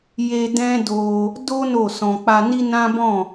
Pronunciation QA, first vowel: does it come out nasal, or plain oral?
oral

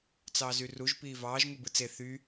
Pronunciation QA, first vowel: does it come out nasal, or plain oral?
oral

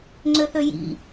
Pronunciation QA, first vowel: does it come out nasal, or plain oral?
oral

